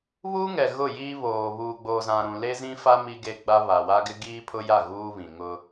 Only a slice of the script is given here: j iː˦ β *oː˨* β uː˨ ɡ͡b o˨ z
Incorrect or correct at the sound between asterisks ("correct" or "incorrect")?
correct